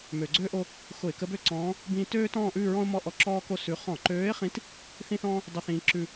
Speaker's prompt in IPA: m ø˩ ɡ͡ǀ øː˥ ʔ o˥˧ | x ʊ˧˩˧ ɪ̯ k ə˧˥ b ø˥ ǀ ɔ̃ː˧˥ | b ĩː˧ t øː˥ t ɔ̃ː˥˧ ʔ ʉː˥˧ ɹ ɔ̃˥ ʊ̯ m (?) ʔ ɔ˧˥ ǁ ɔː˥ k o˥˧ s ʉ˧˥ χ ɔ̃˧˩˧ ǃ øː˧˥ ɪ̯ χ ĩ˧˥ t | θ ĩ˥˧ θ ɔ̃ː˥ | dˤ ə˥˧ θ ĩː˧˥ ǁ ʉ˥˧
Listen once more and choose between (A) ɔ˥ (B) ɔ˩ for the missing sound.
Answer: A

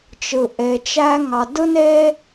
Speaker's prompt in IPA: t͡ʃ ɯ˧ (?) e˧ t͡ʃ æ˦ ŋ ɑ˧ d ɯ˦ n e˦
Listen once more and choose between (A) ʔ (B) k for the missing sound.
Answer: A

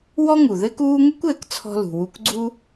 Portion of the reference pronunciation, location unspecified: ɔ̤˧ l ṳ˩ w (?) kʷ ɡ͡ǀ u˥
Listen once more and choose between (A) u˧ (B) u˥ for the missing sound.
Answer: A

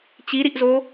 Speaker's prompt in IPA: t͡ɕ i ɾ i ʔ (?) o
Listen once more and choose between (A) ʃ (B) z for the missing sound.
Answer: B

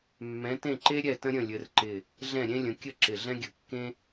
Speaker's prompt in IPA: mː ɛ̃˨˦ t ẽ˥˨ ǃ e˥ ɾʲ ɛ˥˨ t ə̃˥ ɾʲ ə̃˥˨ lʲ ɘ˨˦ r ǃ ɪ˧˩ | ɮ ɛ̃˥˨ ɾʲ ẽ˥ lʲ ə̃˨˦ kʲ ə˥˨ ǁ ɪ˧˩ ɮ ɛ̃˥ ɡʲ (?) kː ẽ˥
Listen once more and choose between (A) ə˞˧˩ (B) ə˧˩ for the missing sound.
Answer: B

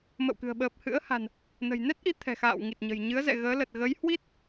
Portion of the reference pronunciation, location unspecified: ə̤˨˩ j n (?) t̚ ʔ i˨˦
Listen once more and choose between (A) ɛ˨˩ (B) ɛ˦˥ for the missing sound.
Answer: B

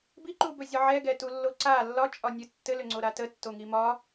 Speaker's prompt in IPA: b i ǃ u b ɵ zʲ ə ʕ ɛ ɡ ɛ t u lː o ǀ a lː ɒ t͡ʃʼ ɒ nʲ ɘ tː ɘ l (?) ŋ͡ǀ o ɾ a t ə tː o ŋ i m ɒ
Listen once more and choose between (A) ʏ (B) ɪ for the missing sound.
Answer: A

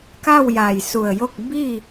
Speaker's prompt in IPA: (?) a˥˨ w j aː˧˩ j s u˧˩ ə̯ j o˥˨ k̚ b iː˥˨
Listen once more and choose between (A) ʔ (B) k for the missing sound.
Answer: B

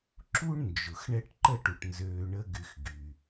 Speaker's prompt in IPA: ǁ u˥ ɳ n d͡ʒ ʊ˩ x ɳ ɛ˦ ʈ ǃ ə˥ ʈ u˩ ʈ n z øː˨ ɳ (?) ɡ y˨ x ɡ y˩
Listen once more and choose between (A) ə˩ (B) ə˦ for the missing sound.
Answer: B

